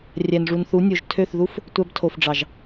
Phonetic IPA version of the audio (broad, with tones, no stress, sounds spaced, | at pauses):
rʲ æ˨ n ʐ u˨ n θ u˨˦ nʲ o˨ ʒ tʰ ø˦˨ θ ð u˦ f | tʷ æ˧ b tʰ o˨ f ɖ͡ʐ ɑ˨ ʒ